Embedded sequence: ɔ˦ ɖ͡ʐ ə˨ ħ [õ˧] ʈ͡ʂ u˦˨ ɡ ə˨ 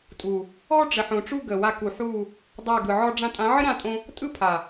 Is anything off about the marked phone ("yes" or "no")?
yes